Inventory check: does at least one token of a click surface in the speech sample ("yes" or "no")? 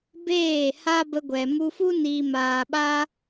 no